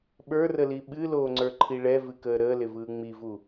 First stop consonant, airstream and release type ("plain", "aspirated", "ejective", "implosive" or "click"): implosive